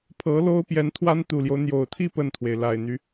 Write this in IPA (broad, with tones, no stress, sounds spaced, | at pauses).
pʰ ɤ˧˥ l o˥ ʊ̯ p j ɛ˧˥ n t̪ʰ w a˥ n t̪ u˨˩ l j o˦ ʊ̯ n̪ j o˨˩ ʊ̯ t̪ʰ i˥˧ p ə˥˩ n t̪ʰ w e˩ ɪ̯ l a˨˩ ɪ̯ n̪ y˦